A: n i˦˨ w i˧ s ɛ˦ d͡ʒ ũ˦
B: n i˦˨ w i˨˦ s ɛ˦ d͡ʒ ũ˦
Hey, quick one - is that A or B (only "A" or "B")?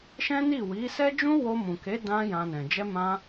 B